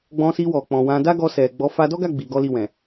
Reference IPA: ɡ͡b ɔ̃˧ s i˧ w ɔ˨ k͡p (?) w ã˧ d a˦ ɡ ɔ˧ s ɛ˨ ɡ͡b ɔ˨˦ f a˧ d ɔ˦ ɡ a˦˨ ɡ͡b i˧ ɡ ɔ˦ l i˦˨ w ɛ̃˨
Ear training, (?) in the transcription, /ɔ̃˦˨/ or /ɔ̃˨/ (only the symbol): ɔ̃˨